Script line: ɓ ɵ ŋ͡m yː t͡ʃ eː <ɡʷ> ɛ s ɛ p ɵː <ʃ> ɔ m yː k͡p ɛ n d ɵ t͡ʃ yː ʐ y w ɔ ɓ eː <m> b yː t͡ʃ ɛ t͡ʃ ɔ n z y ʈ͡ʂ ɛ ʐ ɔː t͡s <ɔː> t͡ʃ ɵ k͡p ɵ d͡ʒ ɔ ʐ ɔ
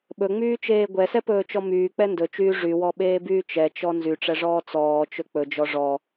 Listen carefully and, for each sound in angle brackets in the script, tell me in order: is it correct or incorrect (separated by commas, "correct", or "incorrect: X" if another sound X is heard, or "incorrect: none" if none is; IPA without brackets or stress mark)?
correct, incorrect: t͡ʃ, incorrect: none, correct